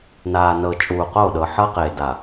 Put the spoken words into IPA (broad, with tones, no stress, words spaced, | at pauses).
naː˨nɤ˨ t͡ʃʼuː˨qo˦˨ɗɤ˨ ħɤ˦qeː˨ da˨